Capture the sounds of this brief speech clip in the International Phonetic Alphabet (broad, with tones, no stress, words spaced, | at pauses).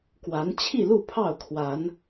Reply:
kwa˨˦n t͡ɕʰi˥˨lu˥˨pʰɑ˥˨ʊ̯kʰwa˨˦n